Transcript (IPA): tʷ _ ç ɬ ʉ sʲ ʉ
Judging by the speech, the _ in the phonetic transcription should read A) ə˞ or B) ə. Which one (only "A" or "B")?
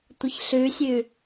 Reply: B